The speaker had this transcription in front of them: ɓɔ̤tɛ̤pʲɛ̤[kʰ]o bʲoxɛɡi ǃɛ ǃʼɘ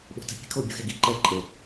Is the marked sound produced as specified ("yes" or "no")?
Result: yes